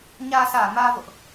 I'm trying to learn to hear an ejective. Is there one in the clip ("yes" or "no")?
no